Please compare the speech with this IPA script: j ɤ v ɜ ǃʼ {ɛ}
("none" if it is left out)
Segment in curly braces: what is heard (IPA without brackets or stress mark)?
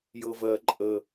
ə